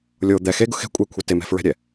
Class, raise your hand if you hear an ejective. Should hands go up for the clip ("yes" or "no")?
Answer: yes